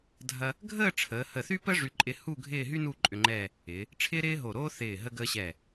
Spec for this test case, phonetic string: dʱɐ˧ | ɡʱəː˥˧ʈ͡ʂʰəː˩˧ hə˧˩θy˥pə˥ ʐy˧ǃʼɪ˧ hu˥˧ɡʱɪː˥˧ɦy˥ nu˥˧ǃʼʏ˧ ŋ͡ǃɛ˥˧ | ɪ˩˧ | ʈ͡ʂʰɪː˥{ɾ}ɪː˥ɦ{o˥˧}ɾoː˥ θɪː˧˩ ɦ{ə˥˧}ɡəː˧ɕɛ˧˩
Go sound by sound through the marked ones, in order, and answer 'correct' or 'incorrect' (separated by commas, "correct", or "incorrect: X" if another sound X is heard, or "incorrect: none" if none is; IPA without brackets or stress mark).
correct, incorrect: o˧˩, incorrect: ə˧